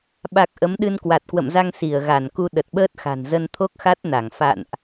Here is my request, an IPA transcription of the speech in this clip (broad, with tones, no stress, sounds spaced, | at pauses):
ɓ a˨˩ k̚ ʔ ə˨˦ m ɗ ɨ˧ n k w a˨˩ t̚ k w ə̰˧˨ m z a˧ ŋ s i˧˩ ə̯ ɣ a˧˩ n k u˧ ɗ ə˨˩ t̚ ɓ əː˦˥ t̚ x a̤˨˩ n z ə˧ n t̪ʰ o˦˥ k̚ x a˦˥ t̚ n a˧˩ ŋ f a̰˧˨ n ʔ